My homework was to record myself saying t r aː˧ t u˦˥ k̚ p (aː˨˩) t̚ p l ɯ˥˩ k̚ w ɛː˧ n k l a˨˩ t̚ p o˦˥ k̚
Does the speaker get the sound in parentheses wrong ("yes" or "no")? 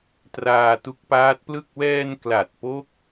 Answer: yes